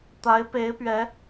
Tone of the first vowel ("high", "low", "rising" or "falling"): rising